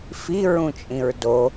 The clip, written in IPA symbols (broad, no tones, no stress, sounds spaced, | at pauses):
f i ɹ ũ t͡ʃʼ ĩ ɹ d o